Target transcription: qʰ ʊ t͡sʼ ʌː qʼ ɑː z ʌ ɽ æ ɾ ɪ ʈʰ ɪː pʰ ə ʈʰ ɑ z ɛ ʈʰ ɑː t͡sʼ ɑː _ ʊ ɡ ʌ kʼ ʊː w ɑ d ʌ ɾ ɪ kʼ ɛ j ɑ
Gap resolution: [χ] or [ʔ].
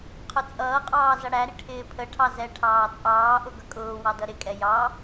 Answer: ʔ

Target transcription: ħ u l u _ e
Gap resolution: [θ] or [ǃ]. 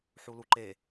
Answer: ǃ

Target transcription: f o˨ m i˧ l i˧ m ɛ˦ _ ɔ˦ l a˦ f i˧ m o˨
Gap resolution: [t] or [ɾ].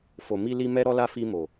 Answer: ɾ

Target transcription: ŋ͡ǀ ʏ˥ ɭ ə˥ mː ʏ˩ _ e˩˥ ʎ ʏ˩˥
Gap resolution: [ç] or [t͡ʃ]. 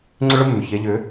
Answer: ç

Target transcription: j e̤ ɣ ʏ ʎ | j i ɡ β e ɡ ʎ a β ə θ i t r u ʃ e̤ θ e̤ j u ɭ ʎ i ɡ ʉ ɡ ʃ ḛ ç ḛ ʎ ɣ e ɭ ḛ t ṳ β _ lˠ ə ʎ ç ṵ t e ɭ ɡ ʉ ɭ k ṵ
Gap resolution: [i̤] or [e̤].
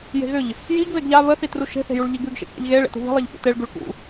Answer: i̤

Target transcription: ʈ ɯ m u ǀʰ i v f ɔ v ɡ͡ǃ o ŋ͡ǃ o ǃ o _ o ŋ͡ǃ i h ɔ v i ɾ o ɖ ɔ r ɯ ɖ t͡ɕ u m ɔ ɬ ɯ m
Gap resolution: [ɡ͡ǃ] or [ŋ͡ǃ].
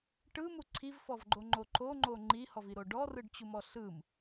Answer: ŋ͡ǃ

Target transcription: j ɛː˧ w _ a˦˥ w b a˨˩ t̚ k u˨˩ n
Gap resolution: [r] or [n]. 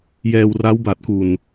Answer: r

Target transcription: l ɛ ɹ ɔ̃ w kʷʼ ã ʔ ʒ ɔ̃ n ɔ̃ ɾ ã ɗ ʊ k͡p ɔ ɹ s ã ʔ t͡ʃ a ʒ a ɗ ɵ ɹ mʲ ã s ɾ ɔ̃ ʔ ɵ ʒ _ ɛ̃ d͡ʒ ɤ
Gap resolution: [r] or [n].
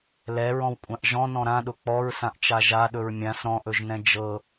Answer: n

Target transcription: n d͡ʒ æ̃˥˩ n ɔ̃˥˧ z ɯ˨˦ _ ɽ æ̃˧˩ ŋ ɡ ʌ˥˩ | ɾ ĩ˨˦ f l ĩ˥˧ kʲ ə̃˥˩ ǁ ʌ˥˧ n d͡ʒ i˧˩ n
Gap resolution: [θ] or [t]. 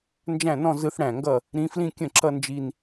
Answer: θ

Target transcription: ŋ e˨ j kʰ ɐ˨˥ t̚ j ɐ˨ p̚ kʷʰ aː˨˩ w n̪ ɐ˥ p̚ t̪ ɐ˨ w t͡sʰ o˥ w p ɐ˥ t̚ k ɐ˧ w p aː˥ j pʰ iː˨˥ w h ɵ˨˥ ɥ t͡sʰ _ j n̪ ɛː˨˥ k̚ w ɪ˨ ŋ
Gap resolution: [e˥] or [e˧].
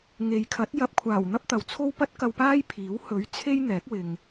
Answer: e˥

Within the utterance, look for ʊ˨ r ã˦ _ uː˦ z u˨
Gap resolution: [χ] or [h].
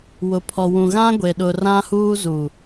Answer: h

